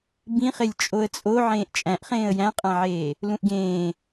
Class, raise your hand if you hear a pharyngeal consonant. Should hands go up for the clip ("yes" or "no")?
yes